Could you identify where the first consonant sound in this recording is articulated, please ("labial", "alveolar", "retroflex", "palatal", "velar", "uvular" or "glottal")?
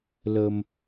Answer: alveolar